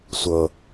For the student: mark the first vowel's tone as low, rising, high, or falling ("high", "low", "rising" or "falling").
low